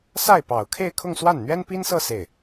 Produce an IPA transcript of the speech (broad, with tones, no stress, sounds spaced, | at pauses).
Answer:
s a˥˩ ɪ̯ p ɑ˨˩ ʊ̯ kʰ e˥˧ ɪ̯ kʰ ʊ˥˧ ŋ s w a˥˩ n n̪ ɥ ɛ˥ n p i˥ n s ɤ˥˧ s e˥˩ ɪ̯